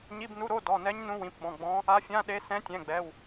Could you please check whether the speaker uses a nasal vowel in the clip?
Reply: yes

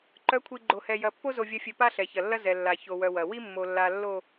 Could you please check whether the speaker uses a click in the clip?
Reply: yes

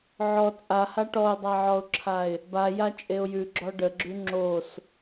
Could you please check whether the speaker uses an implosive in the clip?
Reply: no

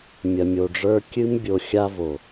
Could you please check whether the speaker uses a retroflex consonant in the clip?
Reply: yes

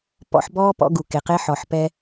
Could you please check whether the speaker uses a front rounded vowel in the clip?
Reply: no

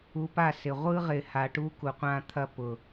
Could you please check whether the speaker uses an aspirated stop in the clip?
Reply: yes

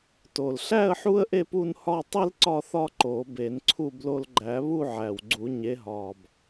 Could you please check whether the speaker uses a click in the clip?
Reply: yes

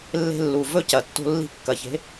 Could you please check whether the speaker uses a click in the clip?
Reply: no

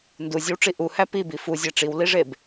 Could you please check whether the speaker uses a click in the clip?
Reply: no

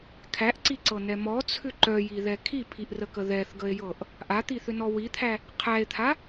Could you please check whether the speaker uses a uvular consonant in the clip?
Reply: yes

